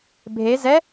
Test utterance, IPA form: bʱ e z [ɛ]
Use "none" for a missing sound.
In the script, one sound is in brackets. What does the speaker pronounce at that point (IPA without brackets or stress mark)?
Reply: ɛ